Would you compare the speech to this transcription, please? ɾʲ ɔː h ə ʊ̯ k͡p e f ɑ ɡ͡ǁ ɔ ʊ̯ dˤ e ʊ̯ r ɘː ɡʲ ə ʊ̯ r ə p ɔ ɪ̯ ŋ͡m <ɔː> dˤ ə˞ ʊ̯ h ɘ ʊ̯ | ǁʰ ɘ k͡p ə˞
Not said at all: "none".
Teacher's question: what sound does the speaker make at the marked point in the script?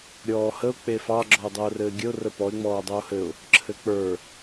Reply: ɔː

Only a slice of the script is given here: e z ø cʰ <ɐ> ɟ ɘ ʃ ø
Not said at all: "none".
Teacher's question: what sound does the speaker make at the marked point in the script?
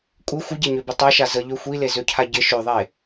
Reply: a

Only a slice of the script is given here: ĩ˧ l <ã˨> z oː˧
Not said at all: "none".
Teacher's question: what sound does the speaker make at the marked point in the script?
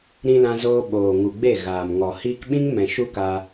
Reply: ã˧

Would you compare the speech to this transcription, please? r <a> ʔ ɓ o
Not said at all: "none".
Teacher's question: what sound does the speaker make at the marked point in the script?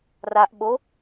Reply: a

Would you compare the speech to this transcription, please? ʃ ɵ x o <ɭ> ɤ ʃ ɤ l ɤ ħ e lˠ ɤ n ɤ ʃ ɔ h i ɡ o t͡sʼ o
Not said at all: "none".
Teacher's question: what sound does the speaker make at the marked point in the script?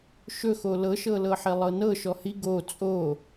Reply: l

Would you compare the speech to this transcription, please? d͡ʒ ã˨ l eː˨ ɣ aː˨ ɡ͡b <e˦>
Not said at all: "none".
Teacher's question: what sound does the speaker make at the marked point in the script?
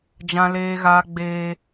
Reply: e˨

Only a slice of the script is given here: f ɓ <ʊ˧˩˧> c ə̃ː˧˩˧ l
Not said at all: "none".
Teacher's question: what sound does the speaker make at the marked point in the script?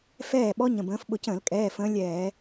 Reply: ʊ˧˩˧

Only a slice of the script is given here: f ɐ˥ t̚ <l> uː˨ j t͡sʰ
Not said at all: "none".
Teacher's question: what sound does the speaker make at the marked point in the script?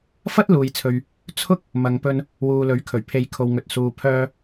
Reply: l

